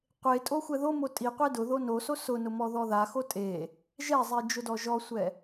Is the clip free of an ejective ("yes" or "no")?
no